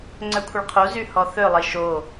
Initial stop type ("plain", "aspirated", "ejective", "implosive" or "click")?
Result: click